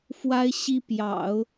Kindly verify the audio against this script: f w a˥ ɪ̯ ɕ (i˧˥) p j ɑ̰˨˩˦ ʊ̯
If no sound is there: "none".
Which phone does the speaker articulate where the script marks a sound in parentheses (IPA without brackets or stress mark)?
i˥